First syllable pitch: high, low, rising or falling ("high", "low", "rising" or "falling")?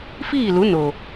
falling